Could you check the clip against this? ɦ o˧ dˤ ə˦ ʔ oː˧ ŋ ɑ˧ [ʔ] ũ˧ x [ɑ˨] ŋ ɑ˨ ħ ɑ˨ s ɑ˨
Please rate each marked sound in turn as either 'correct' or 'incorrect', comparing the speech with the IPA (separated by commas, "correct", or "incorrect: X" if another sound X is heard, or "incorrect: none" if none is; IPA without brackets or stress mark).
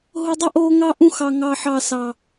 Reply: correct, correct